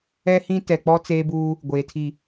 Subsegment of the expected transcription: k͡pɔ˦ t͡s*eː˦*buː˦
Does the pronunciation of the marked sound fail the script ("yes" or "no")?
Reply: no